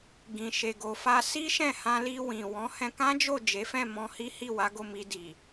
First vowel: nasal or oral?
nasal